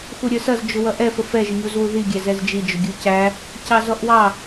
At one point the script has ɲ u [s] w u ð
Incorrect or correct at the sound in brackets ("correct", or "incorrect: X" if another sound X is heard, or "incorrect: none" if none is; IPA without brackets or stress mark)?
incorrect: z